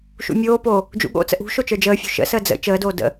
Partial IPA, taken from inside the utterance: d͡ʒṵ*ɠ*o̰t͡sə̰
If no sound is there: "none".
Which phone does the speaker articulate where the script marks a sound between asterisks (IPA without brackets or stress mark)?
ɠ